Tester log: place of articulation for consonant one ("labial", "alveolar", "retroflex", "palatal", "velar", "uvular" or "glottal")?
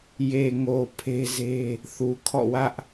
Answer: palatal